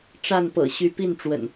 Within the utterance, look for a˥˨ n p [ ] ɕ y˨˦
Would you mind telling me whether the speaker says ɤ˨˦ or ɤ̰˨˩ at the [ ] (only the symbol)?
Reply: ɤ̰˨˩